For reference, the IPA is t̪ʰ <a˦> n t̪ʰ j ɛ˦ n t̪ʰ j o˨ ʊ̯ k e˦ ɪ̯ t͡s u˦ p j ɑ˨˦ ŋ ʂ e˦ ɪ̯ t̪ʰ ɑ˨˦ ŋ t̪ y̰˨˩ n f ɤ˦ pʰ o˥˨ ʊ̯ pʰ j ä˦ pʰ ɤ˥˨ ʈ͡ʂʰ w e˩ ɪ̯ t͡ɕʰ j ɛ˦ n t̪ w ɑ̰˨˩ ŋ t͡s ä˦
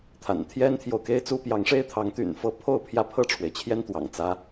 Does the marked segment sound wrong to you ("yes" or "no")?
yes